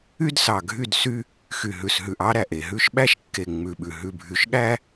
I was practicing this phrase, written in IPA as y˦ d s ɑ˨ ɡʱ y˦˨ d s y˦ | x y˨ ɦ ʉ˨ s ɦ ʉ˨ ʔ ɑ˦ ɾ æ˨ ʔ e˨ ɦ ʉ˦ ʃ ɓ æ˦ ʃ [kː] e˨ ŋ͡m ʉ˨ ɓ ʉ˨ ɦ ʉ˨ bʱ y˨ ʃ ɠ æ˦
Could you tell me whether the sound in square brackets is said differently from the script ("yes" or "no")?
no